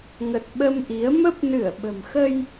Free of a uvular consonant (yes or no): yes